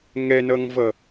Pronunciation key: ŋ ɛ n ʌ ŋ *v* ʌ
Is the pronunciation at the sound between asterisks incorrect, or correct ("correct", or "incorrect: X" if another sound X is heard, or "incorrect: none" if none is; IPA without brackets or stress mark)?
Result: correct